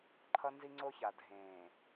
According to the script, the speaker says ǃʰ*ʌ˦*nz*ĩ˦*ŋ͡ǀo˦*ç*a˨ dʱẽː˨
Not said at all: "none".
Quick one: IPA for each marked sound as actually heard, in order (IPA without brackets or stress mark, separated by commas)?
ʌ˦, i˦, ç